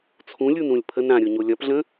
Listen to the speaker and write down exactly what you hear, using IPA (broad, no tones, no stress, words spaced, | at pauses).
t͡sʰũlʲunɾũlʲ pʰən ɾãɾʲoɲo lʲɒpɮə̃